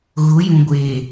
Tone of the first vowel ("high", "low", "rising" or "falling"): rising